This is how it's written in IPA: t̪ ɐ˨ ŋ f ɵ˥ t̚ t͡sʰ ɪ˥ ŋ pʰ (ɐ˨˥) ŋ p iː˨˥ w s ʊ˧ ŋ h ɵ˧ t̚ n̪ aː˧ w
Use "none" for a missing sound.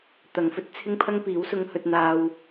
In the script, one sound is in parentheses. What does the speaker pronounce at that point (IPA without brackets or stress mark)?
ɐ˥